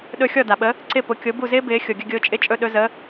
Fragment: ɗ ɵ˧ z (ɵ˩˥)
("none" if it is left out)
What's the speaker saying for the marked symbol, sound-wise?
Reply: ə˩˥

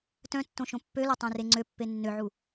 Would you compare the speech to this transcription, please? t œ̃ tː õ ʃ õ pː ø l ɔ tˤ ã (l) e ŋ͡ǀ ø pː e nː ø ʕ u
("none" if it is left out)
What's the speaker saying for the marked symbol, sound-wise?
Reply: r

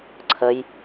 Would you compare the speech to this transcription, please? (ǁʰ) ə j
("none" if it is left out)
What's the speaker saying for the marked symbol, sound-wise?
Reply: ǀʰ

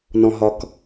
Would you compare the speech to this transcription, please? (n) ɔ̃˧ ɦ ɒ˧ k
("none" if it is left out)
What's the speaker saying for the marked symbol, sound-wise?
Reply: n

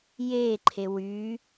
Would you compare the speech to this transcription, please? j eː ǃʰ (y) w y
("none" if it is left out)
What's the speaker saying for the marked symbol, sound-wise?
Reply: e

